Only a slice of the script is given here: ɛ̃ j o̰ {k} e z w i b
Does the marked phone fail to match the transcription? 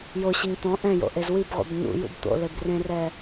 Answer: yes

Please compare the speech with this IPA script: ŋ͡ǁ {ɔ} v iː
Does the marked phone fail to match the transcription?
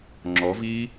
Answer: no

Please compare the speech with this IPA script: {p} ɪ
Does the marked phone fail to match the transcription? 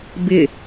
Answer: yes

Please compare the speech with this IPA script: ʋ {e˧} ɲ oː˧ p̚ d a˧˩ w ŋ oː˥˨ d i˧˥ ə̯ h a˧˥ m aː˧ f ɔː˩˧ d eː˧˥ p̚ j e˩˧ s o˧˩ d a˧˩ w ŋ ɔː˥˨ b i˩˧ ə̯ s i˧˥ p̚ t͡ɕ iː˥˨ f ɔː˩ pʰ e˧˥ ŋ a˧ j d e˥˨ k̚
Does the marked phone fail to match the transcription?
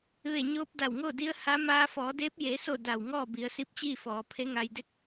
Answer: yes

